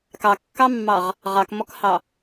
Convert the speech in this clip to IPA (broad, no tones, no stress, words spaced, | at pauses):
kɑkːɑmːɑʁ | ʁɑkmɔkhɑ